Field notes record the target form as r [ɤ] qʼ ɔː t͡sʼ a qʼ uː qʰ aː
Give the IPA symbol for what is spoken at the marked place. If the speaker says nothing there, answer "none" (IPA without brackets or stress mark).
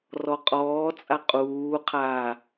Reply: ɔ